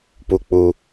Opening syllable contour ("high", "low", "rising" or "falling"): low